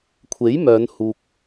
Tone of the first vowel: rising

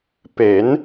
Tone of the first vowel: rising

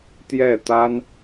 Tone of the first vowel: falling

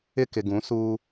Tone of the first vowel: falling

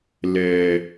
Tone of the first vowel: low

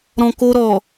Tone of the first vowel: low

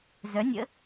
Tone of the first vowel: rising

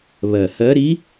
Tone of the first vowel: low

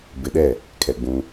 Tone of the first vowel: low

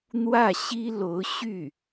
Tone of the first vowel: falling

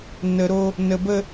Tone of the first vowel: low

